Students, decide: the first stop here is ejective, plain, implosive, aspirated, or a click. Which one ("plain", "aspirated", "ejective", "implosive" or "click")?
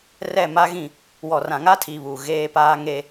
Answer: aspirated